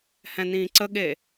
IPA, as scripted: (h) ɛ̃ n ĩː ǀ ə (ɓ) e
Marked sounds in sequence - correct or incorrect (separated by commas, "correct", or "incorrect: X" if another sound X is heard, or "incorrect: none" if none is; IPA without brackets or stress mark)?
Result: correct, incorrect: ɠ